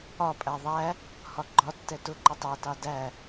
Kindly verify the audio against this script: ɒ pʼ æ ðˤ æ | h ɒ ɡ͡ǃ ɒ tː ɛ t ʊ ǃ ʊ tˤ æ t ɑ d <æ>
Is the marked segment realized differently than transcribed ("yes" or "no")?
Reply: no